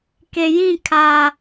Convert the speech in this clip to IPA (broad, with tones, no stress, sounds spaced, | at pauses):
k e˨ j ĩ˦˨ kʰ aː˨